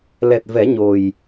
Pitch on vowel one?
low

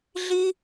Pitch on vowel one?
high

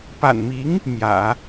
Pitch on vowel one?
low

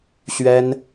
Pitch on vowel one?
high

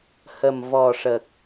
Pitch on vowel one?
low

